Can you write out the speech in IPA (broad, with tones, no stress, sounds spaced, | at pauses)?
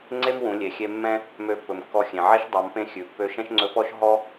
ŋ͡ǀ e˥ m w ũ˩˧ lʲ e˩ xʲ e˧ mː ɛ̃˥ | m ø˧˥ pː ɵ˩ m kː ɔ˧ xʲ ẽ˩ ʕ ɛ˥ ʃ dˤ ɑ˩˧ m p ẽ˧ xʲ ʉ˩ pː ø˧ ʃ ɛ̃˥ ʃ ŋ͡ǀ ɵ˧˥ p ɔ˥ ʃ ɦ ɔ˥